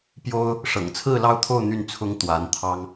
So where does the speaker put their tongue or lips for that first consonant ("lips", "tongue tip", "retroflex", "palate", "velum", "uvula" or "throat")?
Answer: lips